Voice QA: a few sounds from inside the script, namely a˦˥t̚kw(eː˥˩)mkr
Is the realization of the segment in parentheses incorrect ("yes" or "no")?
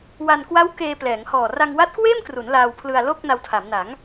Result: no